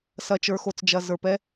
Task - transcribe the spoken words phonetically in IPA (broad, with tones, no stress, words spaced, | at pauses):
sɐ˨t͡ʃə˞˨xo˨t͡sd͡ʒɐ˨ zə˞˨p ɛ˦